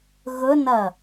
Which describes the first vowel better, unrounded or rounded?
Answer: rounded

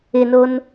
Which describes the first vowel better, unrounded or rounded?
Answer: unrounded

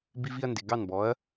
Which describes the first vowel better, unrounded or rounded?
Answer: unrounded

